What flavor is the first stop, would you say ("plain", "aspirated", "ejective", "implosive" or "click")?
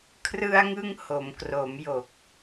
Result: aspirated